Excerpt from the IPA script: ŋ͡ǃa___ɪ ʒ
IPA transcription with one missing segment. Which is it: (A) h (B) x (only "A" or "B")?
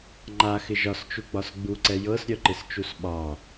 B